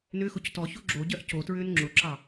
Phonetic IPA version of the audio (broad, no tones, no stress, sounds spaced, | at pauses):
n ʏ x ʊ c t ɔ ç o ɡ͡ǁ o ɟ ɜ ʔ c o t ɹ ʏː n ŋ͡ǁ ʊ ǁ ɑ